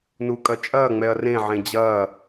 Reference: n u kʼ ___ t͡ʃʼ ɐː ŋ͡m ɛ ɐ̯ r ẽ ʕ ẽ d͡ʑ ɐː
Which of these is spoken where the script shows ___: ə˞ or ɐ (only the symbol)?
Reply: ɐ